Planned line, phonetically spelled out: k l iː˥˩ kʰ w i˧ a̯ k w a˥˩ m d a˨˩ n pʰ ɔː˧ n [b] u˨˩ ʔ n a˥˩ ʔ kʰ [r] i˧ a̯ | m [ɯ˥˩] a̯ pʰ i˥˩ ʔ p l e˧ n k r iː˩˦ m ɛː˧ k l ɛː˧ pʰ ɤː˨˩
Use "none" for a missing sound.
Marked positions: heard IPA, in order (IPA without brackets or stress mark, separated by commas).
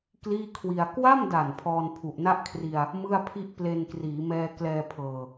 pʰ, r, ɯ˥˩